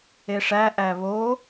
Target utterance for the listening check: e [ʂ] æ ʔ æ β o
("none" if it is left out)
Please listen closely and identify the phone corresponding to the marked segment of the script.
ʂ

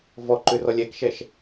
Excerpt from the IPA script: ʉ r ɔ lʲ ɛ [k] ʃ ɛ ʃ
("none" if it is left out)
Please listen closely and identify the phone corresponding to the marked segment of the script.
k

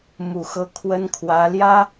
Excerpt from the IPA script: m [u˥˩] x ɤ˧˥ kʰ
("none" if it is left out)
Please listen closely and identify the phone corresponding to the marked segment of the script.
u˨˩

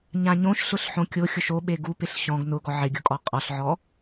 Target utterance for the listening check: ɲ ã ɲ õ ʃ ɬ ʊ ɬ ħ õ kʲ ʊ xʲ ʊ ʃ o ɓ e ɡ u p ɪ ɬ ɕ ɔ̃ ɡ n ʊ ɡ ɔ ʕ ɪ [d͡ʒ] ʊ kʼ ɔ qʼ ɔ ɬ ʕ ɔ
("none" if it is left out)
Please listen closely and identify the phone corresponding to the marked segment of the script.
ɡʲ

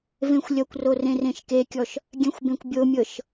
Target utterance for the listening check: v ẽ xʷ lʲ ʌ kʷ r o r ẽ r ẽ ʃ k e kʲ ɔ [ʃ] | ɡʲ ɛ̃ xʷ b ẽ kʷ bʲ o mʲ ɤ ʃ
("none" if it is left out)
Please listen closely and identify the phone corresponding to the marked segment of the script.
ʃ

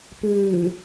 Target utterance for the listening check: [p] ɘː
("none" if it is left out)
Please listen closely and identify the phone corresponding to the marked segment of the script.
p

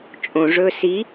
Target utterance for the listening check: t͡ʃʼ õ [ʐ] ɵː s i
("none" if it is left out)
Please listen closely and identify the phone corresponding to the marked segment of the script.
ʐ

